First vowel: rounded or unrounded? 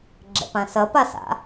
unrounded